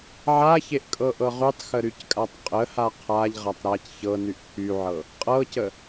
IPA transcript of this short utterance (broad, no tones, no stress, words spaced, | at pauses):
ʕaçeʔ kʼɤʔɤʁytˤxə ɾyckʼatˤqʼəha qʰaʎʁatˤ ɾac çɤnyʔ pʰyʕɤ | qʼɤcə